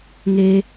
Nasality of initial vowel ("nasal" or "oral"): oral